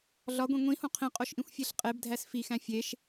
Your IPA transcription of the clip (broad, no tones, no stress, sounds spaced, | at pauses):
ɮ ɒ ɡʷ ĩ ŋʷ ĩ h õ qʰ ĩ qʼ o ʃ ʔ ĩ xʷ fʲ e ɬ qʼ e b dʱ æ s f i x æ̃ fʲ e ʃ